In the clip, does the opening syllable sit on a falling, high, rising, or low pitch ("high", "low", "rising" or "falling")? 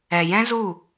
low